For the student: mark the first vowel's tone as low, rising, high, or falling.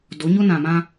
rising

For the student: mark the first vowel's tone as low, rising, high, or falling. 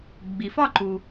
low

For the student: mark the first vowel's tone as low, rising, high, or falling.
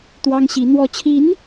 high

